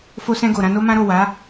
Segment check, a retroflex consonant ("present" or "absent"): absent